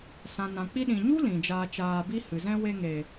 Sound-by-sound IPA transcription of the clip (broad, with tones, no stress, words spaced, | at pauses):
sã˨nã˨ k͡pi˧ɗĩ˨ɲu˦ lĩ˨d͡ʒaː˧t͡ʃaː˧bi˦ hɨ˨zɛ̃˦ we˧ŋe˨